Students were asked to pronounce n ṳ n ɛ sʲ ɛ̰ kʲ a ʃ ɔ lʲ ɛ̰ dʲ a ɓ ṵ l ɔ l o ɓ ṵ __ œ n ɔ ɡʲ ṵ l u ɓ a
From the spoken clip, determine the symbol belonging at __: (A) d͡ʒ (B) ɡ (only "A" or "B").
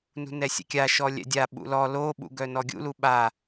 B